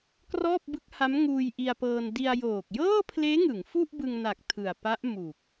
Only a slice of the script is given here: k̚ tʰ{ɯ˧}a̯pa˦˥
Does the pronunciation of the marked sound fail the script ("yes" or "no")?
yes